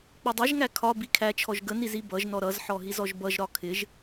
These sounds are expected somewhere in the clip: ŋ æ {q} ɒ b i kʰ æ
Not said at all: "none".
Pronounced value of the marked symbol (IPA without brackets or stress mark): kʰ